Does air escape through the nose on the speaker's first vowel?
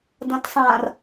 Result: yes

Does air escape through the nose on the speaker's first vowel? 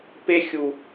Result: no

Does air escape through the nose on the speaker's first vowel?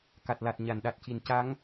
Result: no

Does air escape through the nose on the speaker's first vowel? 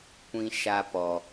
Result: yes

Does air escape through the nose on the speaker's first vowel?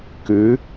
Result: no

